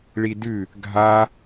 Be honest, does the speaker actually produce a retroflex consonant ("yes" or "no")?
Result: yes